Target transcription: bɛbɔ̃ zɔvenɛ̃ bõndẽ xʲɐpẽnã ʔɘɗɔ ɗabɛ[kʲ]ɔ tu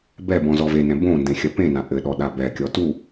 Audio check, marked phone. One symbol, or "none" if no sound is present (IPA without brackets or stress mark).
kʲ